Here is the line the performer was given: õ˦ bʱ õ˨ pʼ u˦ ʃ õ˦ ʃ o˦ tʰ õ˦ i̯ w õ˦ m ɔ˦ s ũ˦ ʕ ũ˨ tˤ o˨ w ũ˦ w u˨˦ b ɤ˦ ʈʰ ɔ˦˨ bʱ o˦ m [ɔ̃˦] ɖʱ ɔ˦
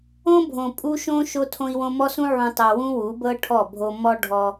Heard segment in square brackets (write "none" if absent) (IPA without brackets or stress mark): ɔ˦